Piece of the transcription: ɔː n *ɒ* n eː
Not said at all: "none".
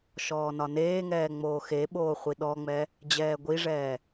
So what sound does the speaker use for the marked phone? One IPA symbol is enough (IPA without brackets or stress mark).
ɒ